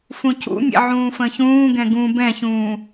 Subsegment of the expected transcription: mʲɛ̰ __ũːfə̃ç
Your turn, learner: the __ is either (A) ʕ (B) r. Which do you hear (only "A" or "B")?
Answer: A